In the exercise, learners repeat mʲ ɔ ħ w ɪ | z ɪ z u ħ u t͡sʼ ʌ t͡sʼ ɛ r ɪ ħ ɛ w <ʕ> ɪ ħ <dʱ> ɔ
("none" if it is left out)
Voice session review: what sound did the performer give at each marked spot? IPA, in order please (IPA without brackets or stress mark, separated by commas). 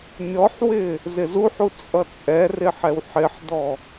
ħ, d